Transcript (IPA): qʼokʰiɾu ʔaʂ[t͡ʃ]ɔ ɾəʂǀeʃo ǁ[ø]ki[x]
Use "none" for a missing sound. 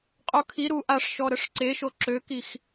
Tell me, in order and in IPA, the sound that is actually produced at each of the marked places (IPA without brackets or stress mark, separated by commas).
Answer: ʃ, ø, x